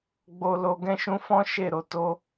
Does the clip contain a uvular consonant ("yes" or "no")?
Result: no